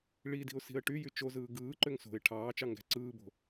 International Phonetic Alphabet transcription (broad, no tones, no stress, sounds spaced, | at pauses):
ɭ i d i̤ ʊ̯ s i̤ ə̯ ʈ y j y t͡ʃ o z ɯː ɡ ɯː ǃ ø ŋ s o̤ ɪ̯ ʈʰ ɑː t͡ʃ ɑ ŋ ɡ æ̤ ǀ ɯː b o̤